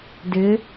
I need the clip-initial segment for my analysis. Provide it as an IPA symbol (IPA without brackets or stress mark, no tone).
d